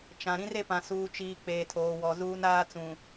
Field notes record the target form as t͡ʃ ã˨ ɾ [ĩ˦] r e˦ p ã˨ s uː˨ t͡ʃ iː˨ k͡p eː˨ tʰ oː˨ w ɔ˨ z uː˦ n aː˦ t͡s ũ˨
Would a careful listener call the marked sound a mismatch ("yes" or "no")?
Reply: no